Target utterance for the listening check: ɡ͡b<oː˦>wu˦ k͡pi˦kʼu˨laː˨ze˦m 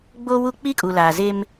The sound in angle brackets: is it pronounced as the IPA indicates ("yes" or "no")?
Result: yes